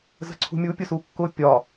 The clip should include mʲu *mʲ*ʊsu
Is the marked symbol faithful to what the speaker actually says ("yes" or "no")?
no